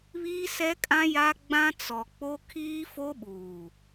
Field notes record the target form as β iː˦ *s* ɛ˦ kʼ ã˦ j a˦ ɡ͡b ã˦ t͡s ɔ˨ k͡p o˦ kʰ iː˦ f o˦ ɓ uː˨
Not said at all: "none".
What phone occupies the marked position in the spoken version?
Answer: s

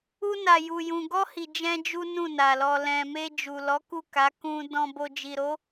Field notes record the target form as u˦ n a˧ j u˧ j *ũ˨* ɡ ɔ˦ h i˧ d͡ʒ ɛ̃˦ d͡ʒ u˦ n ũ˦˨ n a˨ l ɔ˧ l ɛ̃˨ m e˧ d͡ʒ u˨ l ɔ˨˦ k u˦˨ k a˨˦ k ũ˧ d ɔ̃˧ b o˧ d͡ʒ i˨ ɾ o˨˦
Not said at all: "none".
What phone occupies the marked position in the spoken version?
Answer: ũ˧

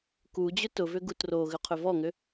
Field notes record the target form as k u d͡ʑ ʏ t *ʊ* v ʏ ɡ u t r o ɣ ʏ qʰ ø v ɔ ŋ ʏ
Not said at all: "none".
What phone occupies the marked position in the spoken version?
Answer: ʊ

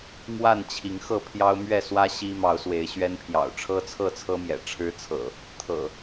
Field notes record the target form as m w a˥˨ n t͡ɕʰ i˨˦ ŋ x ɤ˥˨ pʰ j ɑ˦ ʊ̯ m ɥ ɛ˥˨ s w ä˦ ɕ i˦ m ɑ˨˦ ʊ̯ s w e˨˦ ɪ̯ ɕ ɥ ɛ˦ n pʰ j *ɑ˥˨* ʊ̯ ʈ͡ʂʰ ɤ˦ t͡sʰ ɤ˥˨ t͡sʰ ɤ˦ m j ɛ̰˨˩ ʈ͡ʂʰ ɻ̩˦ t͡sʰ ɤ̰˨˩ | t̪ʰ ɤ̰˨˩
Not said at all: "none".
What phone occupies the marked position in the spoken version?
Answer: ɑ̰˨˩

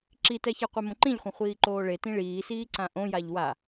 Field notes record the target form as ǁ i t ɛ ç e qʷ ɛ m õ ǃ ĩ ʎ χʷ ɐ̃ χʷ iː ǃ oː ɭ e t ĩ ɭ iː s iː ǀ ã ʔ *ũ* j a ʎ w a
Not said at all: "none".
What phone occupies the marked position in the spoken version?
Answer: õ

